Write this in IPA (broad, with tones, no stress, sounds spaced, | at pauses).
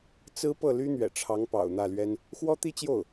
t͡s ɹ̩˥ p ɤ˥˩ l y˥ n̪ ɥ ɛ̰˨˩ ʈ͡ʂʰ ɑ˧˥ ŋ p ɑ̰˨˩ ʊ̯ n̪ ä˥˩ l ɥ ɛ˥ n | x w ɔ˥ t̪ i˥ t͡ɕ j o˥˩ ʊ̯